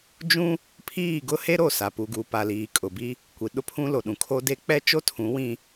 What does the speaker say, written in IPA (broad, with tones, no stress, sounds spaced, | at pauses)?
d͡ʒ ũ˦ | pʰ iː˦˨ ɡ ʊ˦ h e˦ ɾ o˦˨ s a˨ p u˨ ɡ uː˨ p a˨ l iː˨ kʼ ʊ˨ b i˦ | kʷ i˨ ɗ ʊ˦ pʰ ũ˦ l o˨ ɗ ũ˨ kʰ o˦ d e˦ k͡p ɛ˦ t͡ʃ o˦ tʰ ũ˨˦ w ĩ˦